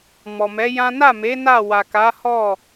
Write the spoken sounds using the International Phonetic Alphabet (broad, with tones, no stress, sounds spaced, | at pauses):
m ɔ˨ m ɛ˨˦ j ã˦ n a˦˨ m e˨˦ n a˦˨ w a˨ k a˨˦ h ɔ˦˨